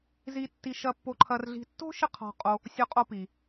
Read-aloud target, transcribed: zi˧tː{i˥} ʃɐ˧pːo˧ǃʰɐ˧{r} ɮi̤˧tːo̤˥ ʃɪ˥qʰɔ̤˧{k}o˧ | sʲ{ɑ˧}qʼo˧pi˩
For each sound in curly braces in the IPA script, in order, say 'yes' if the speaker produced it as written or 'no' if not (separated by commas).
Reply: no, yes, no, no